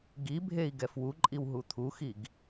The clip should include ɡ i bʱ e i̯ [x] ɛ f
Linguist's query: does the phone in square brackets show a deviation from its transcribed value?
yes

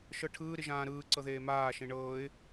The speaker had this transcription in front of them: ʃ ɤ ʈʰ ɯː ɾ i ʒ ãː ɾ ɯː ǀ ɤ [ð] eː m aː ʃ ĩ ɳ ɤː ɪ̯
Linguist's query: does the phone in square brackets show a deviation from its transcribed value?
no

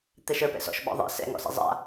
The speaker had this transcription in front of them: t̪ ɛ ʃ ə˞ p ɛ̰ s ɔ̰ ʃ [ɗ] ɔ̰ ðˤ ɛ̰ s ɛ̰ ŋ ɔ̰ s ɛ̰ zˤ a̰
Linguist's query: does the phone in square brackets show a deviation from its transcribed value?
yes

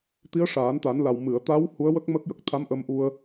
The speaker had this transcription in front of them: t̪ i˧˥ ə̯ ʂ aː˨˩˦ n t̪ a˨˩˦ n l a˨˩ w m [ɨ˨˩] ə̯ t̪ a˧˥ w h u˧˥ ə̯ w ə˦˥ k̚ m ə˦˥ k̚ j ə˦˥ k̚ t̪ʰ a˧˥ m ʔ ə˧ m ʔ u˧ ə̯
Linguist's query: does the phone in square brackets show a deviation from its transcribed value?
yes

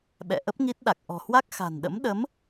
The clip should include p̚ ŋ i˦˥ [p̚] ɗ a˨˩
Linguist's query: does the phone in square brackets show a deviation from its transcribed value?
yes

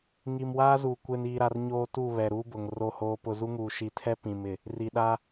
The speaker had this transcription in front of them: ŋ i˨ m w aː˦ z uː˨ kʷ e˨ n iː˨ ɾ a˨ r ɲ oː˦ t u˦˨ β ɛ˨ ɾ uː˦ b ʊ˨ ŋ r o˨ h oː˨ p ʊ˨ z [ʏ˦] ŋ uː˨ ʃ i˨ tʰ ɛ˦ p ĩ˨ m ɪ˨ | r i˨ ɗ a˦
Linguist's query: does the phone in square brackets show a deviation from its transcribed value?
yes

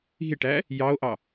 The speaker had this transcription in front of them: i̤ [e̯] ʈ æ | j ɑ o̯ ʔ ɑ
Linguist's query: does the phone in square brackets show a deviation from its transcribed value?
no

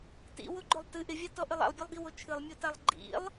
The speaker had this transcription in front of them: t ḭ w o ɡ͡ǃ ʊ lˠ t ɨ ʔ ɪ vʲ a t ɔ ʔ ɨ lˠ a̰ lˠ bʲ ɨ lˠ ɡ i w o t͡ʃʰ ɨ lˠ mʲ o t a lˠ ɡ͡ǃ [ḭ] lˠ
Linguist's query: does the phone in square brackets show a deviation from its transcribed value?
no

